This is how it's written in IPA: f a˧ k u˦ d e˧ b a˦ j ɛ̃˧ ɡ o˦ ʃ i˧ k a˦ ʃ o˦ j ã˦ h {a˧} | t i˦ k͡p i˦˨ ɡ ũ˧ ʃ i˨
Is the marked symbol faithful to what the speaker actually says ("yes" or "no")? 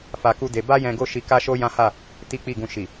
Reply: no